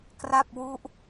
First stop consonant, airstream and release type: plain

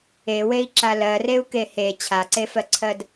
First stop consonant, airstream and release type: click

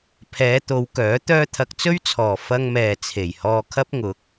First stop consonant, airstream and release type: aspirated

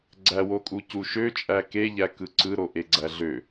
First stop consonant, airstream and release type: click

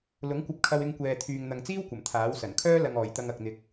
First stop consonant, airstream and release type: plain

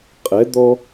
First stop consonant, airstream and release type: ejective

